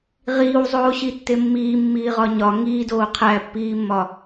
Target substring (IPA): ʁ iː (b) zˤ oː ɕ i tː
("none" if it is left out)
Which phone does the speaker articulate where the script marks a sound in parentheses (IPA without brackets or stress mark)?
w